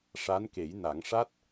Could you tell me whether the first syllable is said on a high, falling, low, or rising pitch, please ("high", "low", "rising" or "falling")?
rising